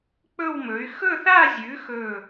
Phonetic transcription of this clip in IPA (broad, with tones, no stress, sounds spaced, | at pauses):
k͡p ɵ˥˧ w m ɵ˨˥ y̯ x ɵ˥˧ θ a˥˧ zʲ ʉ˨˥ x ɵ˧˩